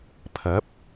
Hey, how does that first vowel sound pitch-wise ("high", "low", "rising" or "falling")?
rising